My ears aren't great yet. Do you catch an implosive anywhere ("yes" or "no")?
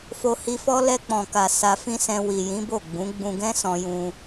no